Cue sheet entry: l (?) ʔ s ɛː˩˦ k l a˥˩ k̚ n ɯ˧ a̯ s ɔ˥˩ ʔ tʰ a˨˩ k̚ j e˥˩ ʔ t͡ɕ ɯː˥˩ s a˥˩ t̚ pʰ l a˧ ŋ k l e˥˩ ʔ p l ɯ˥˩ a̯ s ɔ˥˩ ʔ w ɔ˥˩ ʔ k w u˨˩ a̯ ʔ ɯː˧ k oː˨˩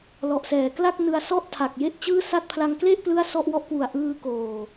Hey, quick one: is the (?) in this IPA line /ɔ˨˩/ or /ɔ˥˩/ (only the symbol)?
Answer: ɔ˨˩